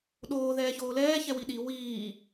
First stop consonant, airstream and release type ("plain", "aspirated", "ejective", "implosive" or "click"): implosive